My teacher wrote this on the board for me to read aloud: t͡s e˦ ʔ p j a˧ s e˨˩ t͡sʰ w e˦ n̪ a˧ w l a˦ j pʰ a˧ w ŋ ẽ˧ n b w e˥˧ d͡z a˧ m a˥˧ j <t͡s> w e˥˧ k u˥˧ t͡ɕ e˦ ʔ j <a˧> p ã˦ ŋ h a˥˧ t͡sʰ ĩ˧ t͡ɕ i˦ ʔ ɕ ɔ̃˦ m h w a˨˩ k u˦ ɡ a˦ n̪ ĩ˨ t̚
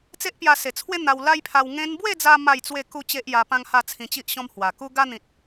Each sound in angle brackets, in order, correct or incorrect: correct, correct

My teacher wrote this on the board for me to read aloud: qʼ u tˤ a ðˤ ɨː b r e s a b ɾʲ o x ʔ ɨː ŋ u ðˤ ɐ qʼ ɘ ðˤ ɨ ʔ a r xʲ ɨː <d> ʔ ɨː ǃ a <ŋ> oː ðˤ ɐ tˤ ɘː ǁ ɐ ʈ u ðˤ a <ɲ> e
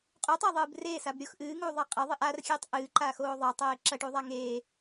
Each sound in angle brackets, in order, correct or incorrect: incorrect: tˤ, incorrect: x, incorrect: ŋ

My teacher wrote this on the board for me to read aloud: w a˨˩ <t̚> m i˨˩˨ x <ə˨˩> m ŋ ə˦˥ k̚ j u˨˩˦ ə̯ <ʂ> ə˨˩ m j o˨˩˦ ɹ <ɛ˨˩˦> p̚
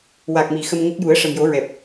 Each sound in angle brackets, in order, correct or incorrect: incorrect: k̚, incorrect: ə˧, correct, incorrect: ɛ˨˩

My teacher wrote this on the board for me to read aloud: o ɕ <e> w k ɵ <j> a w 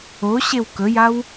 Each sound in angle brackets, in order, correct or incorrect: correct, correct

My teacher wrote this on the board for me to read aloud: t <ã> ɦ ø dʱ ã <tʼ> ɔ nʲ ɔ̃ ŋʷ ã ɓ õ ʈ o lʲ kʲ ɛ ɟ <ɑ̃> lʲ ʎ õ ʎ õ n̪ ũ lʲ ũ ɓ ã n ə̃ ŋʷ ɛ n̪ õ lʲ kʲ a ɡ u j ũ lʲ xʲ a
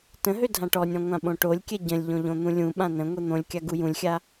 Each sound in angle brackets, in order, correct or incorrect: incorrect: ə̃, incorrect: ʈ, incorrect: ə̃

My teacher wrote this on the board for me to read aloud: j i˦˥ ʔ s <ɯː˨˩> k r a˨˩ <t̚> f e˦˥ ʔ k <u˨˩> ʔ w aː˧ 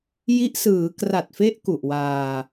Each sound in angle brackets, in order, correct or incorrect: incorrect: ɯː˩˦, correct, correct

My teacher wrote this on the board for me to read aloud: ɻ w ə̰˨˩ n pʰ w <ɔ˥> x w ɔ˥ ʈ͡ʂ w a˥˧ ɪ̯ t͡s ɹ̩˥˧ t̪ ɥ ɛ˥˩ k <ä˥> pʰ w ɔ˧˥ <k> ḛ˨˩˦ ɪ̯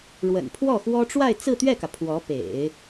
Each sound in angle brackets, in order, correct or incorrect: incorrect: ɔ˥˩, incorrect: ä˩, incorrect: p

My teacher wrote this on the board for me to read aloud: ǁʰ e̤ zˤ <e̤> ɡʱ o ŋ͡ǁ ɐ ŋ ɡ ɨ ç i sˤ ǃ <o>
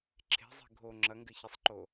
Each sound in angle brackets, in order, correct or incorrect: incorrect: i̤, correct

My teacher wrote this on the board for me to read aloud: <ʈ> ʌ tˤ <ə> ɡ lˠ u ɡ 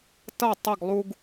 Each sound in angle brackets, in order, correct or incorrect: incorrect: t, correct

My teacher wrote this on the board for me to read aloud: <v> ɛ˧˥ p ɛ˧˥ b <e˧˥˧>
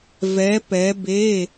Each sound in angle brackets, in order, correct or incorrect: correct, correct

